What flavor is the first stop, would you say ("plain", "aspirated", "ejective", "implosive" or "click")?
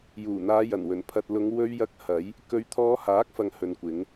aspirated